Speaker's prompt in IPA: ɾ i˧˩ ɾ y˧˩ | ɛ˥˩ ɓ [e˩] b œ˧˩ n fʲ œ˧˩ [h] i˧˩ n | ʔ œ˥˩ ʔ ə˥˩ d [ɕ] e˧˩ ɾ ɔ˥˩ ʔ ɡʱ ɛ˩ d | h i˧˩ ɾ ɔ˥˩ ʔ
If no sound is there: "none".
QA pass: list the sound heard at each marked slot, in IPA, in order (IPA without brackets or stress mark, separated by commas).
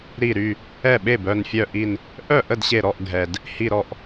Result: e˥˩, ʔ, ɕ